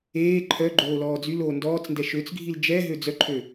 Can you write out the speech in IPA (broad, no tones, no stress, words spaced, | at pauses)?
eː ǃʰœɡ͡ǃoː lɔːd͡zyloː ndɔːt͡sndɛ ʃøt͡sɡʱil d͡ʒɛɦø d͡zœǃʰø